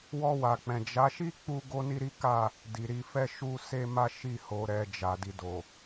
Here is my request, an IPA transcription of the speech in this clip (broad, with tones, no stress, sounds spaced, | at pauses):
w ɔ˧ w a˨ k͡p ɛ̃˨ d͡ʒ a˨˦ ʃ i˦ k͡p u˦ ɡ o˦ n i˦ ɾ i˦ k a˦˨ | d i˨ ɾ i˧ f ɛ˦ ʃ u˦ s e˦ m a˦ ʃ i˦˨ h o˨˦ ɾ ɛ˧ d͡ʒ a˨ d i˧ d o˨